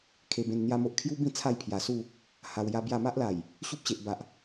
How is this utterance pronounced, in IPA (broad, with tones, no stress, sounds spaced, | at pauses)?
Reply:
kʰ e˧ b ẽ˧ n n̪ j a˦ m o˦ ʔ kʰ j u˦ b ĩ˥˧ t͡sʰ a˥˧ j pʰ j a˨˩ s u˥˧ | h a˧ w j a˦ b j a˥˧ m a˦ ʔ l a˨˩ j | ɕ u˦ p̚ ɕ e˨ ʔ b a˨ ʔ